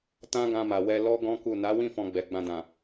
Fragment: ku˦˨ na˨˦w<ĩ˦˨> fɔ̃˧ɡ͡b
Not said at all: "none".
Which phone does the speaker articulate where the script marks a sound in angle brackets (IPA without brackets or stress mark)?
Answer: ĩ˦˨